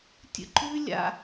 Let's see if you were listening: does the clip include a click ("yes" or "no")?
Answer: yes